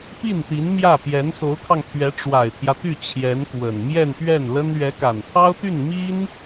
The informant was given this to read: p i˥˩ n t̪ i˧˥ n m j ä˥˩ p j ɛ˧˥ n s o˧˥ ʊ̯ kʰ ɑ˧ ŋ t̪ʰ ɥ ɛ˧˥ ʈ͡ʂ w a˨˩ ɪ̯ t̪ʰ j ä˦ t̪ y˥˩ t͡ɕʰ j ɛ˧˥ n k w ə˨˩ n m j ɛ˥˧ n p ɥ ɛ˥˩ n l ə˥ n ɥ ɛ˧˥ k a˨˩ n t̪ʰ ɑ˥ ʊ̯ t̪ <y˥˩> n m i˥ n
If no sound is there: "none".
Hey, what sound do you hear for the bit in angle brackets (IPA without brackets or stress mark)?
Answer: y˥˩